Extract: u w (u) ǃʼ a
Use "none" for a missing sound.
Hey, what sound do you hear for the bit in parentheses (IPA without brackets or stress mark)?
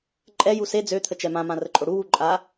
u